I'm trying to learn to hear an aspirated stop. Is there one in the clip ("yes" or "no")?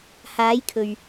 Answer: yes